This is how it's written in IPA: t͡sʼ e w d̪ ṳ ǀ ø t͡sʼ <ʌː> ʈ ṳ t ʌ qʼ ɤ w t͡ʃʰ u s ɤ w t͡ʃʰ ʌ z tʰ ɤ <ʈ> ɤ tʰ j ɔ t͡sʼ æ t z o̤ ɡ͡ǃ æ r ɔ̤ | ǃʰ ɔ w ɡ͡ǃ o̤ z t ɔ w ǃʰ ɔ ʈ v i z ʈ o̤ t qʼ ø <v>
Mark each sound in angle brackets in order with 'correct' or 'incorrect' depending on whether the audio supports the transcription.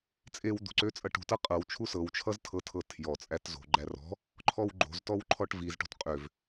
incorrect: ʌ, incorrect: tʰ, correct

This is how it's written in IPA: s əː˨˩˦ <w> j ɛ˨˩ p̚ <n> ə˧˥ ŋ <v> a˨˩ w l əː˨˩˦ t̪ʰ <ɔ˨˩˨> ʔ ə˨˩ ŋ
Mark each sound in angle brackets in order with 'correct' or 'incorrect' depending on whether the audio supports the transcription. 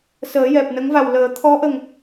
incorrect: none, correct, correct, incorrect: ɔ˧˥

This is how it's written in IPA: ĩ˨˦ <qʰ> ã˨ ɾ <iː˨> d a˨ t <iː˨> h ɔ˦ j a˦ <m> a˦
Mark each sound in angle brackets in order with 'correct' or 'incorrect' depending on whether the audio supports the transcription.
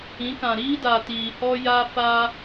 incorrect: k, incorrect: iː˦, correct, incorrect: f

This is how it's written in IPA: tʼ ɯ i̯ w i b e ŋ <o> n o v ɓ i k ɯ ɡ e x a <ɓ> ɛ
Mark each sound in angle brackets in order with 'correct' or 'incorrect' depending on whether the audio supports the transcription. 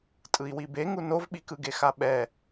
incorrect: u, correct

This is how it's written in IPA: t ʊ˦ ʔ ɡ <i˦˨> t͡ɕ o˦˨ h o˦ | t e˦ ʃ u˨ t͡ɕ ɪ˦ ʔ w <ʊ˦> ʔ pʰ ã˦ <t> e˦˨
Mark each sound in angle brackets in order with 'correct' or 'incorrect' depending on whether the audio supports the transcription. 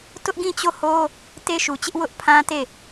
incorrect: ĩ˦˨, correct, correct

